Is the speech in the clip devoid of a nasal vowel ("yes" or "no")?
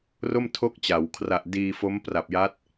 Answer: yes